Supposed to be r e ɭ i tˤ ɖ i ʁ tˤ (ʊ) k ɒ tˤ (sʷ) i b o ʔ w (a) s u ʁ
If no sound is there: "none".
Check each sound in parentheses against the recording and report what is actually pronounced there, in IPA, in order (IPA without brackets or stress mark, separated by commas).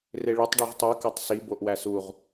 u, s, æ